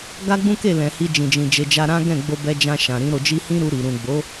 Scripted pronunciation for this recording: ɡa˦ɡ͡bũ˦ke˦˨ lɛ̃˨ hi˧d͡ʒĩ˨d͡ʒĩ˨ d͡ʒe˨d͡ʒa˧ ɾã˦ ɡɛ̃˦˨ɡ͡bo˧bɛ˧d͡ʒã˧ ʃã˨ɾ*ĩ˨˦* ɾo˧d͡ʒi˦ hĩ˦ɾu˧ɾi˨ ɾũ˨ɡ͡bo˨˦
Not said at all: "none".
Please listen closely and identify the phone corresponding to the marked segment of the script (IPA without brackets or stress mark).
ĩ˨˦